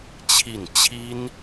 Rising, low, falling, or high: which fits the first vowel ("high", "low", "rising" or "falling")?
falling